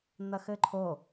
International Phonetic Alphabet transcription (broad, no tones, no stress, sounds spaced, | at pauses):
n̪ ɐ x ɘ ǃʰ o